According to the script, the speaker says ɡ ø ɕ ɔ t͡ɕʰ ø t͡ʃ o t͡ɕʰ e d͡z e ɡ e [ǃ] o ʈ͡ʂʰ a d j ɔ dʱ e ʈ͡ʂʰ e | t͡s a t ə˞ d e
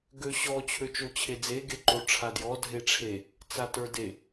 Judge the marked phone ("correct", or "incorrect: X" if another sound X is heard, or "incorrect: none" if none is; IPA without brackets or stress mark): correct